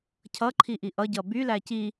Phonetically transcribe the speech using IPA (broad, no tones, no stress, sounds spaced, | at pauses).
cʰ ʌ ǃʰ i ʔ i ʔ ʌ ɟ ʌ b y l æ c i